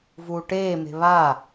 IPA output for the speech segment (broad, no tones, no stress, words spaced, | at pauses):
vuːʈeːme̤ βa